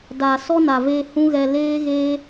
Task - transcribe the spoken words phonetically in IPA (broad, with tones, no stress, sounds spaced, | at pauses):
d a˨ s ɔ˦ n a˨ v eː˧ h ũ˦ ɣ ɛ˧ l eː˦ ɣ eː˦